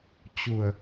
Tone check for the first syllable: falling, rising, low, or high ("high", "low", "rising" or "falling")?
low